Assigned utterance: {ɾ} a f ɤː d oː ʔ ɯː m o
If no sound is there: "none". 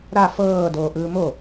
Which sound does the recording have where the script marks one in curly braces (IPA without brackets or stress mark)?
ɾ